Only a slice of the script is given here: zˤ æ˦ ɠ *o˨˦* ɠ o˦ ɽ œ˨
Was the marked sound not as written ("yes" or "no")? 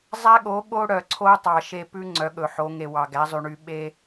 no